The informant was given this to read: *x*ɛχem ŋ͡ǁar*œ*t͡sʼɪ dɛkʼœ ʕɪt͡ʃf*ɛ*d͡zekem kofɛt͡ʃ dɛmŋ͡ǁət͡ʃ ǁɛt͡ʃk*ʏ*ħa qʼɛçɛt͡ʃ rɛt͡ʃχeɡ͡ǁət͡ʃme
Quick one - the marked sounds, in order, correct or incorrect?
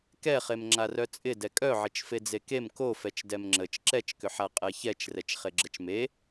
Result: incorrect: k, correct, incorrect: e, correct

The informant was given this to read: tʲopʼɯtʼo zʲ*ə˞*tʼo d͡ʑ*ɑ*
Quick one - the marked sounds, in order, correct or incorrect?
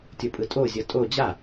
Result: incorrect: ʌ, incorrect: a

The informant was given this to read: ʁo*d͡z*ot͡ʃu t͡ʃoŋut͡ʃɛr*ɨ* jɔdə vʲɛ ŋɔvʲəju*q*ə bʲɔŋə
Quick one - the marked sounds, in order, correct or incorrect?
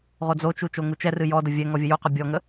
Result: correct, correct, correct

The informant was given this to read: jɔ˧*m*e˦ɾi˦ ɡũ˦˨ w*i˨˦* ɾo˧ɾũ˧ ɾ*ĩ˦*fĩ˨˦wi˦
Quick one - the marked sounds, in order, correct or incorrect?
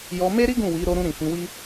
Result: correct, correct, incorrect: ĩ˨

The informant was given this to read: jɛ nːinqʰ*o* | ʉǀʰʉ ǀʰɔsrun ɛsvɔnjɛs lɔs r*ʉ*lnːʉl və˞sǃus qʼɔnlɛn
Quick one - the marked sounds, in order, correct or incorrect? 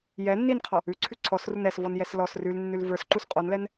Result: incorrect: ɔ, correct

